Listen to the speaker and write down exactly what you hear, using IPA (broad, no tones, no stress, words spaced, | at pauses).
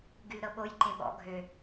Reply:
ɡylɾɤɓoj ǃẽɓɔ̰ ɡʱø